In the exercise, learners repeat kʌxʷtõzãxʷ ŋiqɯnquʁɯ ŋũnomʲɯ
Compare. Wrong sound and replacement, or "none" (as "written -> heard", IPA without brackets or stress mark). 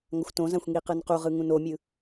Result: k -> ŋ